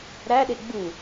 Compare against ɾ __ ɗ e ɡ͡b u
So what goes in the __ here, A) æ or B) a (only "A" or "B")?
A